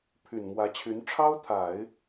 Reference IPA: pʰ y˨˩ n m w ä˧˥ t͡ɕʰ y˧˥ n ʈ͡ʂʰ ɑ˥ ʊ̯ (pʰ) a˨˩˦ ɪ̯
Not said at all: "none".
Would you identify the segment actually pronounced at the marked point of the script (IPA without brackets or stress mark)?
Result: t̪ʰ